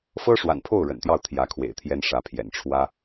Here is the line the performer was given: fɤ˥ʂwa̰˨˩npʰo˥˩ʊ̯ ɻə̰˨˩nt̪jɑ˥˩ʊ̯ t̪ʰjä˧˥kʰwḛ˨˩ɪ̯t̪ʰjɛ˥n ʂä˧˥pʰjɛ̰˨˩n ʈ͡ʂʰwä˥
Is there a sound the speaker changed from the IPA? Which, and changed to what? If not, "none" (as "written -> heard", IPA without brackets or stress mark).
none